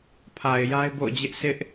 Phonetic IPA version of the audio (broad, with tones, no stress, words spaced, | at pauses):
pʰa˨ɪ̯ ja˦ɪ̯bo̰˦˨ʊ̯d͡ʑɪ˦ʔ sɪ˦ʔ